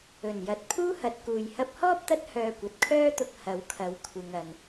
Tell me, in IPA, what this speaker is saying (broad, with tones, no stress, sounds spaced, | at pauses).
ɵ˨˩ n j ɐ˨ t̚ pʰ uː˥ h ɐ˨˥ t̚ k uː˨ j h ɐ˧ p̚ h ɔː˥ p̚ t̪ ɐ˥ t̚ h œː˧ kʷ ɐ˨ t̚ kʰ œː˥ t̪ ʊ˧ k̚ h ɐ˨˥ w kʰ ɐ˨˥ w kʷʰ ɪ˨ ŋ ɐ˨ n